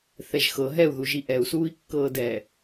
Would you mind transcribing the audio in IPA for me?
θɛʒxɤ ɦɛu̯ ðuʒiʔɛu̯ suːi̯kːɤːdɛ

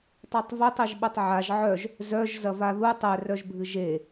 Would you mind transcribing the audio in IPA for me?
tˤætˤvœtˤiʒɓɐtˤ ʕaʒ ʕœʒ | zœʒ zɐvaðu tˤɛrœʒbʱɨ ʒe

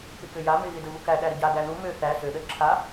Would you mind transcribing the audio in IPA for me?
pɪkøja mɪ ɣɪdəvukæ ɗæɾəɟa ɡæðu mø θæ sø ɗəɾɪǁʰa

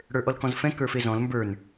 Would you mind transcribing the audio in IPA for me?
ɽə˞ʔɔlkɔ̃zfɛ̃ kə˞fezɔ̃l mbə˞n

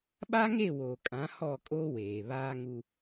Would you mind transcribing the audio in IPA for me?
ɓa˦ŋe˦˨woː˨kʼã˨˦ hɔ˦˨kʼo˦weː˨ βaː˦ŋu˦

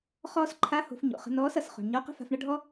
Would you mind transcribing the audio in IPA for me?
χɔː˥s ǃʰa˧˥ho̤˩˧f ɲo̰˩χə̤˧ nɔː˧˥sʌ˩sχo̤˩ɳ ɲɔ˧˥qə̤˥fa̤˧fɳʌ˥ ɖʱɔ˥

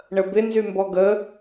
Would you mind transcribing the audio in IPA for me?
ɳəbɪ nzymbɔɡə

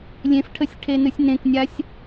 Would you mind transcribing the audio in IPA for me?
lʲẽfʈʰəsʲ ʈʰenɨsʲnẽknʲasʲ

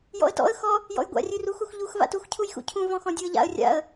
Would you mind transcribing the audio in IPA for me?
jɔ̰ə̯tɔ̰ə̯ xɔ | jɔ̰jɡʷa̰ rʲʉrux uxʎux va̰tux cʰujxṵcʰũ vɔ̃xɔ̃dʲuə̯ʎa̰ə̯ rʲa̰ə̯

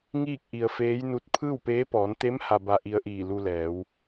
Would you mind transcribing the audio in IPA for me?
ŋiː˥˨k̚ʔi˩ə̯feː˧˥jnu˧t̚ pʰɯː˥˨wpeː˧˥pɔː˩˧n t̪e˧˥m ha˧ba˧ʔi˧ə̯ʔiː˧˩ lu˧lɛː˩˧w

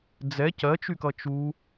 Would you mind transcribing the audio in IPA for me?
d͡zɛ cɜt͡ʃykʌ t͡ʃu

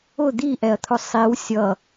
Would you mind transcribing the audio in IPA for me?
ʊ d̪iʔɛɐ̯t̪ʰʊ sˤiw sʲʌ

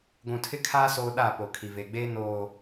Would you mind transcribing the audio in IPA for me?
ɡʷũ˨tʰɪ˦kʰaː˦ soː˦ɗa˦˨ po˨ kʰi˨veː˨ɡ͡beː˦ noː˨

